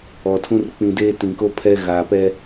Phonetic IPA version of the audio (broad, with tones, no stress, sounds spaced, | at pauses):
ɔ˨ tʰ ũ˦ r k͡p ĩ˨ d eː˦ t ĩ˨ k o˦ pʰ ɛ˦ ɣ a˨ p ɛ˦